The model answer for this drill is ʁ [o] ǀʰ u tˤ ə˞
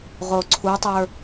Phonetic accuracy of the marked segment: correct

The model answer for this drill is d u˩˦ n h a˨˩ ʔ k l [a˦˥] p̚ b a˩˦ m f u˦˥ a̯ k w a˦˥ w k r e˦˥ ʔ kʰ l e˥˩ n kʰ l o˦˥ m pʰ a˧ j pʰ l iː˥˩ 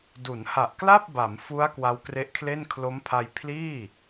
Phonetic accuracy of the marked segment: incorrect: a˥˩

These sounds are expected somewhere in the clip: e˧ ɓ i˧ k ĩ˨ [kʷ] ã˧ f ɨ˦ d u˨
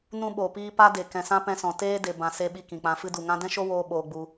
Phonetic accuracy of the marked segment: incorrect: k͡p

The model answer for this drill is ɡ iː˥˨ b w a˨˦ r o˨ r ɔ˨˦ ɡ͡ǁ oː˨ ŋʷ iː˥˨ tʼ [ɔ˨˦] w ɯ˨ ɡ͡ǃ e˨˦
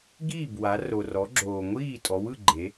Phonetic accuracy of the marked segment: correct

